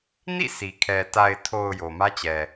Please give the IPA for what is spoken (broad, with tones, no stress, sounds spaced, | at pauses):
n ḭ˦˨ s i˨ kʰ ɛ˨ t a˨ ɪ̯ tʰ o˨ ʊ̯ j o˨ m ä˦ t͡ɕ ɛ˨